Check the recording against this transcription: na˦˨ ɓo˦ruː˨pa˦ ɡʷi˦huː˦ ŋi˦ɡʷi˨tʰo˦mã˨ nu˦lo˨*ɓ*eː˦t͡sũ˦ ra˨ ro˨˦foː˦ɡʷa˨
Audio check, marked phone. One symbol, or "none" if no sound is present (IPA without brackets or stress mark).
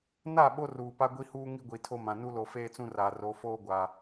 f